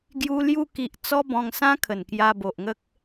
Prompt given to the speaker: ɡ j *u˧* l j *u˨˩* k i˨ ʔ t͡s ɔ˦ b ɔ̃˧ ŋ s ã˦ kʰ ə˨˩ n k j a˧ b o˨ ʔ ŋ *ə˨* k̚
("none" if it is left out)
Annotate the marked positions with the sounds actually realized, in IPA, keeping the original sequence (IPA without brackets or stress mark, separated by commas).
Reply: u˧, u˧, ə˦